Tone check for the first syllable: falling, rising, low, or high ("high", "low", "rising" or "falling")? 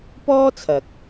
high